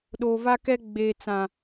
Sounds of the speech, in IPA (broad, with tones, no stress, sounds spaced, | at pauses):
ɗ o˨ v a˦ k ɛ˦ ɡ͡b eː˨ t͡s ã˨